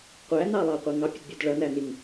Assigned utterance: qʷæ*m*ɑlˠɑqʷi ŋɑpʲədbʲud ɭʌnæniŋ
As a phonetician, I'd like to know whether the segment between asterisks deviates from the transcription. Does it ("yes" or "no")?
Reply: yes